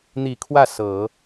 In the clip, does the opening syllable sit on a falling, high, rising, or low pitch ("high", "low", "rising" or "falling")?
low